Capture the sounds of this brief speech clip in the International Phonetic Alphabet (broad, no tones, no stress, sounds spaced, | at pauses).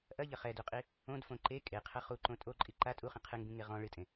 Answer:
ʔ ɐ ʎ ɐ χ ɛ d u qʼ i | õ d f õ ǃ e kʼ e qʰ ɐ χ u ǃ õ tʼ o ǃʼ i ǃ a tʼ u χ ĩ qʰ ɨ ŋ b ĩ ŋ e ʁ ɔ̃ ɭ ɨ tʼ ẽ